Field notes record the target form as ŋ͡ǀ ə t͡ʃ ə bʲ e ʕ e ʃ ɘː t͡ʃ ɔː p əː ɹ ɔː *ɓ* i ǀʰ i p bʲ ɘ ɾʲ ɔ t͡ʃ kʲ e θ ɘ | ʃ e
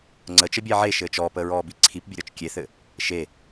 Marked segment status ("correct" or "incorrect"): incorrect